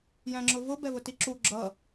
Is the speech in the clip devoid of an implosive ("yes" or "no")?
yes